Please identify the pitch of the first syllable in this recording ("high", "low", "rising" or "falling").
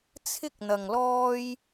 high